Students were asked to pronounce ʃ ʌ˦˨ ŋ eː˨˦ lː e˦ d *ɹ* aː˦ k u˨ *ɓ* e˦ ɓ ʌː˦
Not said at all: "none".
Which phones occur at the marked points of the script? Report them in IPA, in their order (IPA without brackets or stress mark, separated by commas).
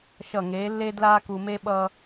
l, m